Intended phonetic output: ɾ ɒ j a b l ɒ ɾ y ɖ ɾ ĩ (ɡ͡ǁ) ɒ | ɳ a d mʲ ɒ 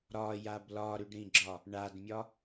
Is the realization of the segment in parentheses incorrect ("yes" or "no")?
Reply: no